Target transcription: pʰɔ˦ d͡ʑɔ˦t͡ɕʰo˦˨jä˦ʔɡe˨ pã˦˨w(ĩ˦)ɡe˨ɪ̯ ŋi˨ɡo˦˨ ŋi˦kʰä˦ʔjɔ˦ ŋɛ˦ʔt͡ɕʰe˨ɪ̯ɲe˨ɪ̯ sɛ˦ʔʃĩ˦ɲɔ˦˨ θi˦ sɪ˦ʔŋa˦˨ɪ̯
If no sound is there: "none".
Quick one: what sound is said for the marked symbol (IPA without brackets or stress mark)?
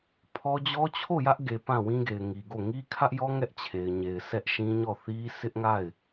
ĩ˦